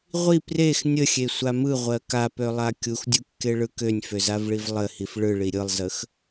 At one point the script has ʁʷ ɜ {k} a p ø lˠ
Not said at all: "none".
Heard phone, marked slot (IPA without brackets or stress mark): k